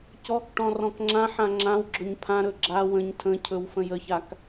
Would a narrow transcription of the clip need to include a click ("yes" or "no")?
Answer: yes